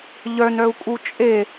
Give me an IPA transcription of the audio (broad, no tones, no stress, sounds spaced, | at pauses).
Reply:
ʎ œ n œ u̯ kʼ u t͡ʃʼ e